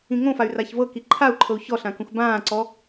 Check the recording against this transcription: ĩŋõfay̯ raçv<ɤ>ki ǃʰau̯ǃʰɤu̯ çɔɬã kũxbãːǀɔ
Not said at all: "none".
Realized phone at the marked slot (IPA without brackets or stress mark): ɤ